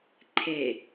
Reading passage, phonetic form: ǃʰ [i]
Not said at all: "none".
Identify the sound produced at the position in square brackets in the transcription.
e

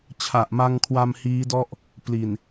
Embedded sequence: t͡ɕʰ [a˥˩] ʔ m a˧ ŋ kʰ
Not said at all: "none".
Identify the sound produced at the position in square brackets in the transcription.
a˨˩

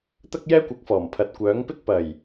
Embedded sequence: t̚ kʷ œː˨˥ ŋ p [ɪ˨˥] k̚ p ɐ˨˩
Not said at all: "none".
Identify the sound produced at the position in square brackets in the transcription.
ɪ˥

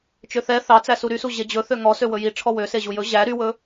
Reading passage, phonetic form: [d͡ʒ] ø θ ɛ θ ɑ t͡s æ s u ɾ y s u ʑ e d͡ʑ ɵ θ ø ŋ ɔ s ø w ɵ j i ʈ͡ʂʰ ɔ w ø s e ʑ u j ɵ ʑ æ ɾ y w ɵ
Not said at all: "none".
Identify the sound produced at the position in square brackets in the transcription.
t͡ʃ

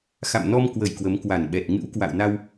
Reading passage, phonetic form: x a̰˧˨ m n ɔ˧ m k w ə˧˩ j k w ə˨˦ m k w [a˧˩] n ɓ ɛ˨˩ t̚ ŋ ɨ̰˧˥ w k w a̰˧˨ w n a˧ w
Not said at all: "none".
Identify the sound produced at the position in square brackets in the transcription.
a˧˩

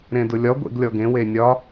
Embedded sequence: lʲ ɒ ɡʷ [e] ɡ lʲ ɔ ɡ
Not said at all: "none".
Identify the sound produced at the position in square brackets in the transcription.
ḛ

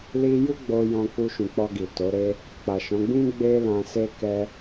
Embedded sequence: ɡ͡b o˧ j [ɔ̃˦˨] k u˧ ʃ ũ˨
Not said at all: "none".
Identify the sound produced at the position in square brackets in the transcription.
ɔ̃˧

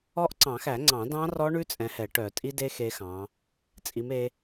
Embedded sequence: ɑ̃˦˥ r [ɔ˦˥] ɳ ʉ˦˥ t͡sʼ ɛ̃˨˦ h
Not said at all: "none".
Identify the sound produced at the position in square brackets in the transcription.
ɔ˦˥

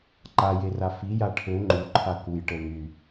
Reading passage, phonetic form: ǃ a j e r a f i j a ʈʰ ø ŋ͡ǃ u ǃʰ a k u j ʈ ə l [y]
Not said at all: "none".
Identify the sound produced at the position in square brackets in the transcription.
y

